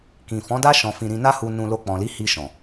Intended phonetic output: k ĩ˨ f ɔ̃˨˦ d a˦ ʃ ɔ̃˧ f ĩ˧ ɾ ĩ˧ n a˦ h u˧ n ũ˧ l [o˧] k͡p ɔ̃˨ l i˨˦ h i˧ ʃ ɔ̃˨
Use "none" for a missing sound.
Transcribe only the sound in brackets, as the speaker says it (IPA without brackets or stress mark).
o˧